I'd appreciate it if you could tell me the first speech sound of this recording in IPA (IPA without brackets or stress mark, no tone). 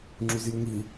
ŋ͡ǁ